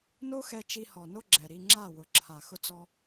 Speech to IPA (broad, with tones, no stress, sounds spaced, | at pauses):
n o˦ x ɛ˧ t͡ʃ i˧ h ɔ˨ n o˦ ɡ͡ǁ ɛ˨ ɾ i˧ ŋ͡ǁ a˦˨ w ʊ˨ ǁʰ a˨ x ʊ˦ t͡s ɔ˦